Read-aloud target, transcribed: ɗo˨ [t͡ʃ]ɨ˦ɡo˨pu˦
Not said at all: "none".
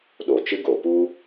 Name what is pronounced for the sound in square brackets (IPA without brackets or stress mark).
t͡ʃ